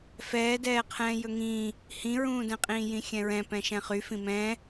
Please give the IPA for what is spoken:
fɛːdɛːqʰɛ̃ː jɵŋĩː | hĩɹũːdɛ̃qʼĩː jĩxʲɛ̃ɹɛ̃ pɛ̃ʃɛ̃χy fĩmɛ̃ː

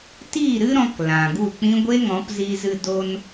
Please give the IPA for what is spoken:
tiː˦˨ɾɨ˦ɾɔ̃˧k lã˨ɡu˦˨k͡pĩ˦ ɡʷe˦ŋɔ̃˨˦pzi˧zɨ˧ do˧n

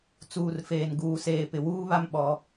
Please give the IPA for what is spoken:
t͡suː˨rfeː˨nɡuː˨seː˨ pɪ˨wuː˦βa˦m ɓɔ˦

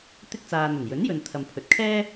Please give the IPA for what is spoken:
t̪ɪ˥k̚ t͡saː˨n̪ɵ˨˩njɵ˨˥n jɵ˨n t̪ʰɐ˨mpʰɵ˨˥t̚ kʰɛː˥

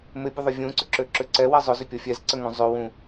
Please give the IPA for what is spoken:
mɪbʲʊðˤʊ vʲũǀʏǁøǁʏ ǀɛwɛ zˤʊzʏpʲɔ fʲɛzǀəŋũ zˤøwũ

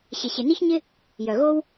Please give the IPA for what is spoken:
ɕɪ˩ɕɪ˩ni˧çɲɪ˧ | jœ˩ɣo˧w

